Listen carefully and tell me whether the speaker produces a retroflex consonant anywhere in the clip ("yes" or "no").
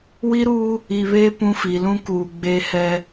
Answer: no